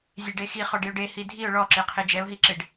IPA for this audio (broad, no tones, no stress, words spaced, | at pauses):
zʲeɖexi χɔɖiʊ̯ɖe hidʱiʊ̯ ɭɔǁeqʰe d͡ʒɛʊ̯ɦiǁeɖ